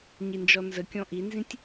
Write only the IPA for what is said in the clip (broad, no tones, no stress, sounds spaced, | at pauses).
ɲ i n d͡ʒ ɔ n z ə kʲ ɔ̃ ʔ i n z ĩ tʲ